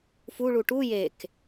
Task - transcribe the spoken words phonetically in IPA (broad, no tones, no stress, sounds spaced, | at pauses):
f u ɭ u ʈ u j e k